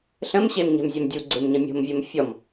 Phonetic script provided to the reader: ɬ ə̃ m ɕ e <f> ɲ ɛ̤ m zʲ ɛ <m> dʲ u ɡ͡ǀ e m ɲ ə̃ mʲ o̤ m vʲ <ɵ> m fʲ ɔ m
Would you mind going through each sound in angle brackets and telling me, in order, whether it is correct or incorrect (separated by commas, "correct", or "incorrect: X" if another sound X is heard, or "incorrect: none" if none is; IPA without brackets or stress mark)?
incorrect: m, correct, incorrect: o